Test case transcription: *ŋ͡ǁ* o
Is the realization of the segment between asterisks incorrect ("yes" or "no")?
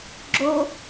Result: yes